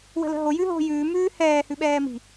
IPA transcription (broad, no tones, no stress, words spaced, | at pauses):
wə̤lə̤ɦo jʉɦo̤ jʉː mʉːhɛː hʉɓɛːmi̤